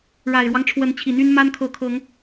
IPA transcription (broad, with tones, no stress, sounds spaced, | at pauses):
ɻ a˨˩ ɪ̯ ɻ w ɑ˦ ŋ ʈ͡ʂʰ w ə˨˦ n t͡ɕʰ i˨˩ n̪ y˦ n m a˦ n kʰ ɤ˨˦ kʰ ɤ˨˦ ŋ